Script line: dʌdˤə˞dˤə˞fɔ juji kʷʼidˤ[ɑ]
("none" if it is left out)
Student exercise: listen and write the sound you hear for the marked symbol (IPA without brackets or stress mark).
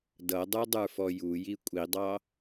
ɑ